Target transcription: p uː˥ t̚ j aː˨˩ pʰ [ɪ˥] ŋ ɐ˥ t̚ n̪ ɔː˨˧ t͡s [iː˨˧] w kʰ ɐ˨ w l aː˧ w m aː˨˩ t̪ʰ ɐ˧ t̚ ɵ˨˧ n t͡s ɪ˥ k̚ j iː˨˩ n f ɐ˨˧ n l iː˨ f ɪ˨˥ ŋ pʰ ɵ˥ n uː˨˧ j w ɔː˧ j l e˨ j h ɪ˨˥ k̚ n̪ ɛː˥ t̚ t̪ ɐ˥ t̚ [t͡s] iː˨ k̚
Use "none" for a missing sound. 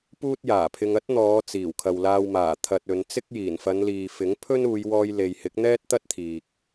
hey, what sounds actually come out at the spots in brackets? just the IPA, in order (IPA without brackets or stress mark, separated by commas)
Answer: ɪ˧, iː˨˩, t̪ʰ